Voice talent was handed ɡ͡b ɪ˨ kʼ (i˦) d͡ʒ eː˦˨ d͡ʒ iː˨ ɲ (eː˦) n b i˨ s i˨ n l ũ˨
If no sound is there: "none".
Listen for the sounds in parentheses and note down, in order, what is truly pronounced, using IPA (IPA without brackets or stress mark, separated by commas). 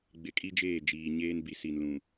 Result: i˦, eː˦